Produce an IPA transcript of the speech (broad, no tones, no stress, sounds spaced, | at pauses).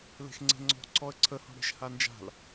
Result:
l e̤ x ŋ͡ǀ e̤ ŋ͡ǀ ɔ̤ ǀʰ ɔ ə̯ ǀʰ ə h ɔ̤ ɽ e̤ ʃ h a n d͡ʒ a̤ l